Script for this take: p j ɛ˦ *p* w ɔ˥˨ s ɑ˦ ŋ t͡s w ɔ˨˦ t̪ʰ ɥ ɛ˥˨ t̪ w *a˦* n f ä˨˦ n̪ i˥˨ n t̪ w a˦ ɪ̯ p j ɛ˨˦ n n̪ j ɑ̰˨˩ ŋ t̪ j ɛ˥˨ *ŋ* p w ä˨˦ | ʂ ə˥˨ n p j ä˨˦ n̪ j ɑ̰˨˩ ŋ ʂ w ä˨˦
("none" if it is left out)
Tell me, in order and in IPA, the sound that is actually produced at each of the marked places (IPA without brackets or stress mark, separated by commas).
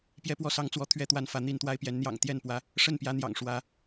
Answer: p, a˦, n